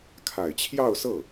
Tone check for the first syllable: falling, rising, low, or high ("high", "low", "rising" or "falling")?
low